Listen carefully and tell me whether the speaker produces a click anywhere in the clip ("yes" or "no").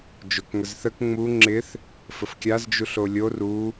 yes